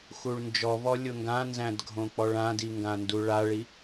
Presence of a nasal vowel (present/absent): present